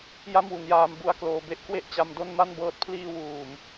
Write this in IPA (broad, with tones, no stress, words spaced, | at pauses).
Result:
ja˥˩mwu˩˦njaː˧m bu˧a̯ kloː˧ be˦˥ʔkwe˥˩ʔt͡ɕa˧m do˥˩nma˥˩nbɤː˦˥t̚ pʰliː˧ wuː˨˩m